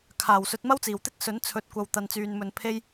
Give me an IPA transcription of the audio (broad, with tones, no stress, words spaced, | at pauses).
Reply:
kʰaː˨˩w sɵ˨˥t̚mɐ˥wt͡siː˨˩wt̪ɪ˥k̚ sɵ˨˥nt͡sʰɵ˨t̚kʷɐ˨w t̪ɐ˧nt͡syː˧nmɵ˧n pʰe˥j